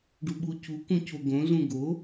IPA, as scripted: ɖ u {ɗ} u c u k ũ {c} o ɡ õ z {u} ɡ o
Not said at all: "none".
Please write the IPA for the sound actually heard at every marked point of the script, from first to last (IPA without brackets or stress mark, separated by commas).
ɓ, c, ũ